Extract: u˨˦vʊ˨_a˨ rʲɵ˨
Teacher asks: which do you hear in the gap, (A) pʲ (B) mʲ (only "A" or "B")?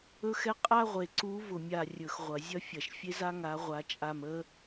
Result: B